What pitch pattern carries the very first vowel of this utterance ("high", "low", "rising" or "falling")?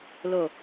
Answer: low